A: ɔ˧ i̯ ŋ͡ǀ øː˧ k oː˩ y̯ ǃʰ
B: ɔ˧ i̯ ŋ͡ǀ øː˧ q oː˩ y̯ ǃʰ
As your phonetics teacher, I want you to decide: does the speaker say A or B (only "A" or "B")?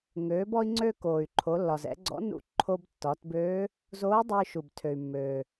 A